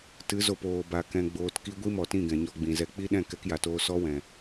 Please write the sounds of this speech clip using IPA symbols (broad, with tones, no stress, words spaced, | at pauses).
tɨ˨˦zo˨p oː˨ba˨ kɛ̃˨ɡ͡boː˨tki˧ ɡʷi˦mɔ˨tĩ˦˨ ɡɛ̃˨ɲɔ˧ɡ͡bĩ˨zɛ˧ k͡pi˦ɗɛ̃˦˨ kɛ˧kja˨toː˧ sɔ˦wɛ̃˨